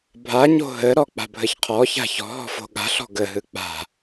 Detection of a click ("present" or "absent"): absent